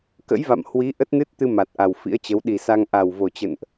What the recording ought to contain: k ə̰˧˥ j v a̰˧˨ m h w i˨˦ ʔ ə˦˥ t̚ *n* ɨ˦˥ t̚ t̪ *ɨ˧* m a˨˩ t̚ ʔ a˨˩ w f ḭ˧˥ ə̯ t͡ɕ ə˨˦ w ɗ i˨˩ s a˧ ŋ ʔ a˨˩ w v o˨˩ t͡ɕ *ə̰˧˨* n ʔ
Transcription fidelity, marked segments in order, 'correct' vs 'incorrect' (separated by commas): correct, correct, correct